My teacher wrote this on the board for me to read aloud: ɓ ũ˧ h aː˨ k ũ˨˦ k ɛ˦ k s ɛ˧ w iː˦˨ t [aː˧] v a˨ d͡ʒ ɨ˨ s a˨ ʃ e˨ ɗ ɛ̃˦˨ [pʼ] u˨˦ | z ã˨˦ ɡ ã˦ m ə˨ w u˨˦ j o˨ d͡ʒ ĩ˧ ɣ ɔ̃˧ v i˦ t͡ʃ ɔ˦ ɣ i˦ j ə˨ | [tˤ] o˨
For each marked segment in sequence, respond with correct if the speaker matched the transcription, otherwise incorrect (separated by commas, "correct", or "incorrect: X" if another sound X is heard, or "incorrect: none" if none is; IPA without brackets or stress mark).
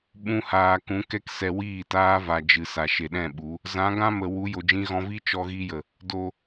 incorrect: aː˦, incorrect: ɓ, incorrect: d